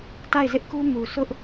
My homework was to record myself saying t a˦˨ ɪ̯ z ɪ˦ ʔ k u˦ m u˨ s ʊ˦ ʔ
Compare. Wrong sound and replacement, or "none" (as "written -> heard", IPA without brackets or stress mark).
none